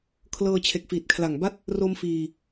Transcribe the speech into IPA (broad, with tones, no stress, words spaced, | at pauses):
kʰlɤː˧t͡ɕʰe˨˩k̚fiː˨˩t̚kʰla˨˩ŋ ba˥˩t̚ | ro˦˥mfiː˧